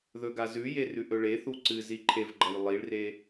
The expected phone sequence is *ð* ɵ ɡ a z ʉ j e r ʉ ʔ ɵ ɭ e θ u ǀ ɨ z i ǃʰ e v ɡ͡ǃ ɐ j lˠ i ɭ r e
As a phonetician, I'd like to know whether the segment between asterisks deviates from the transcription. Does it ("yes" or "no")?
no